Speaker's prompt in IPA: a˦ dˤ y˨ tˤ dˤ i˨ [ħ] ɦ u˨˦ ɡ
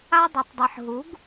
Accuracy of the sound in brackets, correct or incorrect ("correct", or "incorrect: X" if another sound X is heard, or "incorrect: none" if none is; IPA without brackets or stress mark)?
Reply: correct